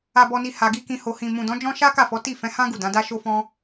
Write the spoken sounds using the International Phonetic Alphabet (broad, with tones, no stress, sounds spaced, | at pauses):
a˨ b ɔ˨ n i˨ h a˨ ɡ i˧ k ĩ˨ h o˨ h ĩ˨ m ũ˨ d ɔ̃˨˦ d͡ʒ ɔ̃˦ ʃ a˦ k a˦˨ f ɔ˨˦ t i˦˨ f ɛ̃˨˦ h ã˦ ɡ u˦˨ d ã˨˦ d a˦ ʃ o˦ f ɔ̃˦